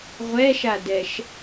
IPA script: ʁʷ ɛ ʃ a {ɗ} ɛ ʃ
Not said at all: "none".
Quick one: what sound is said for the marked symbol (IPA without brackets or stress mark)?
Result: d